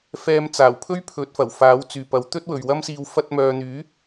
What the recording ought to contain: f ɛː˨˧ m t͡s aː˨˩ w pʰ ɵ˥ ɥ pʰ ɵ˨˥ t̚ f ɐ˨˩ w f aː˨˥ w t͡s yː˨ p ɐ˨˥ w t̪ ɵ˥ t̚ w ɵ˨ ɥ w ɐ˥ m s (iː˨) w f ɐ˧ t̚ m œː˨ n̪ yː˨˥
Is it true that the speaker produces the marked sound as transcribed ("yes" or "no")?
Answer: no